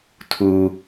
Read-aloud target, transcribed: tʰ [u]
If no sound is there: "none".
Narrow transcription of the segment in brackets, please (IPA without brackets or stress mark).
u